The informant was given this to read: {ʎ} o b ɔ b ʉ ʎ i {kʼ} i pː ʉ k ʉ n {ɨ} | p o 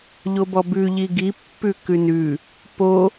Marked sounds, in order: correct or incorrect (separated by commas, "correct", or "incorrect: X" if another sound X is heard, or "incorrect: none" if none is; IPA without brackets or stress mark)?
correct, incorrect: ɡ, incorrect: ʉ